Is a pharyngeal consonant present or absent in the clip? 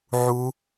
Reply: present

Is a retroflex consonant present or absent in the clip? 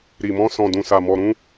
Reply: absent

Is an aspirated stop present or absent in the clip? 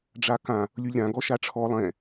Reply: present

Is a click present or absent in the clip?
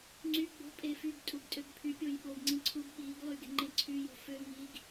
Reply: present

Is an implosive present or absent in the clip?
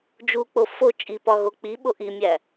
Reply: present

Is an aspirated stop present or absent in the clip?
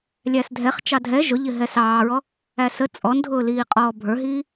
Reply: absent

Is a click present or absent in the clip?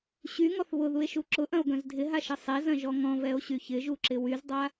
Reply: present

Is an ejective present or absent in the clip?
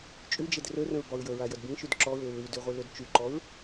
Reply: present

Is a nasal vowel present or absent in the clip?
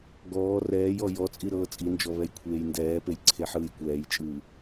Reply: absent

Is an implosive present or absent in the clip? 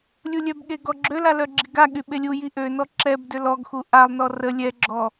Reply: present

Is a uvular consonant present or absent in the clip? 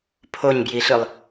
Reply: absent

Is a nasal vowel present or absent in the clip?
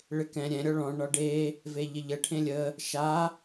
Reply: present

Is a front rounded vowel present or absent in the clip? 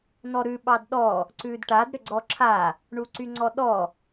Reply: present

